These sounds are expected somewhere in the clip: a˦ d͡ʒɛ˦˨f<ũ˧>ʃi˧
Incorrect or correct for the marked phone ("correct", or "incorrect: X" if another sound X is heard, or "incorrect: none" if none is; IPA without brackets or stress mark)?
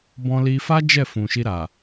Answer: incorrect: ũ˨